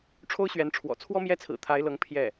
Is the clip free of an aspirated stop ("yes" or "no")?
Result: no